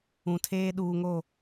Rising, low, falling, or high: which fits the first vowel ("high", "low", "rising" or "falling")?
low